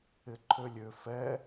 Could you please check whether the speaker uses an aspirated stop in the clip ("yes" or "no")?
yes